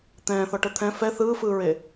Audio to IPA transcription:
t̪ɛ̃ːθɔʈɤ t̪ʰɛ̃ fɛ θɯːfɯːɹeː

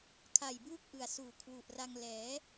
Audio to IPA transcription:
kʰa˨˩jbuː˥˩k̚ʔɯ˨˩a̯suː˨˩ kʰwu˨˩ʔra˧ŋ lɛː˩˦

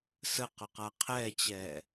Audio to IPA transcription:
sə qʊqaqʰɛt͡ɕɛː

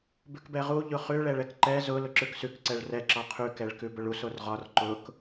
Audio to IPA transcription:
bʉkbɛʁu ʎʊχʉ ɭɛɭɛkǃɛ zʊ lʊǁʉksʉk ǀɛɭrɛ ǁɒqʰʉ kɛɭkʉbʊɭus orʁɒr ǃʊk

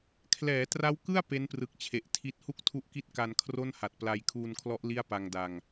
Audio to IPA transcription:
kʰlɛː˩˦tra˦˥wkɯ˥˩a̯ pe˦˥nprɯ˨˩k̚t͡ɕʰe˨˩ʔ tʰi˦˥t̚ hu˥˩k̚ tʰu˦˥ʔki˦˥t̚ ka˧nkʰro˥˩nha˨˩t̚pla˧j kʰuː˧nkʰlɔ˦˥ʔ li˥˩a̯pa˧ŋda˧ŋ

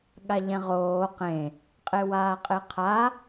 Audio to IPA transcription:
ɠaʎɛ̃ʁoː qẽ | qʼewaːqʼeqʰa

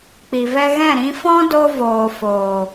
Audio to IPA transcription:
k͡pi˨vɛ˧ɣɛ̃˦˨ ɾĩ˧fɔ̃˦do˧ voː˨foː˨

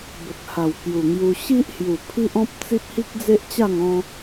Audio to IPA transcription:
bə˨k̚ha˨˩w kju˨˩ŋju˧ ɕi˦ʔhju˨˩ pʰi˦ʔɔ̃˦p̚t͡si˦p̚ hi˦k̚d͡ze˦ʔt͡ɕa˥˧ŋ ɔ̃˧

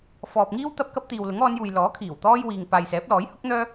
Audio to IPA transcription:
fɔː˨p̚ŋiː˥wt̪ɐ˧p̚ kɐ˥p̚ t̪iː˨wlʊ˨˥ŋɔː˨˧njuː˨j lɔː˨˥kʰiː˨˩wt̪ɔː˥j wiː˧ŋ paː˨j sɛː˨˥p̚lɔː˨˥jhʊ˥k̚n̪œː˥

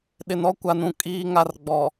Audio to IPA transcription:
ɗɪ˨nɔ˦kʷa˨nũ˨ kʼiː˨ŋa˨r ɡ͡bɔ˨

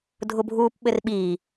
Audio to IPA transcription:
dʱʊbʱuːpɓɘrɓiː

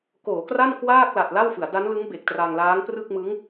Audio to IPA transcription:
koː˩˦kra˥˩n kwaː˥˩k̚la˨˩t̚ la˥˩wfɯ˩˦a̯ da˦˥nlɯ˦˥ŋ be˨˩k̚tra˧ŋlaː˦˥ŋ prɯ˥˩k̚mɯ˦˥ŋ

